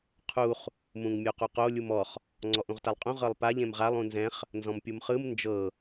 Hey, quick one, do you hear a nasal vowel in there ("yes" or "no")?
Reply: yes